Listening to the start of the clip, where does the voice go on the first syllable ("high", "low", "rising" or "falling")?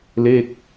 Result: falling